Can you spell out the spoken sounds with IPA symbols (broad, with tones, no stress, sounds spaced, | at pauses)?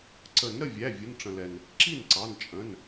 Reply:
ǀ ə˨˩˦ n ɾ ə˩˧˩ vʲ æ˩˧˩ vʲ ʊ˩˧˩ n ʈ͡ʂ ə̃˩ l ɛ˩ n | ǁ i˥˩ n ǀ ɑ˩˧˩ n t͡ʃʼ ə̃˩˧˩ n